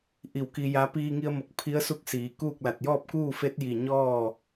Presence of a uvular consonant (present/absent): absent